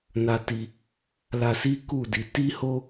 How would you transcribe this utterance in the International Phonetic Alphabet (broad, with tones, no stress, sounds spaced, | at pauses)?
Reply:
n a˧ t i˧ | l a˧ s i˦ k u˦˨ d i˨˦ t i˦ h o˦